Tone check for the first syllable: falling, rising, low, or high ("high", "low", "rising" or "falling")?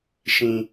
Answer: low